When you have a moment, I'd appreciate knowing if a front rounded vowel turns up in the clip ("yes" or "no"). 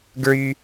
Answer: yes